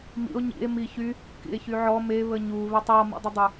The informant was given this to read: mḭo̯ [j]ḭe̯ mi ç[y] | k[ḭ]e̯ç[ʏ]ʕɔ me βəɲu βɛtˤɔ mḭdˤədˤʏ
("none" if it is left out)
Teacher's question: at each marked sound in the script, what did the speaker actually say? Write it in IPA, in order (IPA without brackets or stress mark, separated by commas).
ɲ, y, ḭ, y